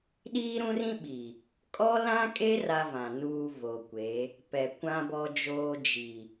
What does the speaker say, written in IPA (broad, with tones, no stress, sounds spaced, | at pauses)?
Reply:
ɗ iː˦ ɾ ũ˦ r ĩ˦ ɓ i˨ | kʼ ɔ˦ l ã˦ kʼ e˦ r a˦ v ã˨ n uː˦ v o˨ kʷ e˨˦ | p ɛ˨ kʷ ã˦ b ɔ˦ d͡ʒ oː˦ d͡ʒ i˨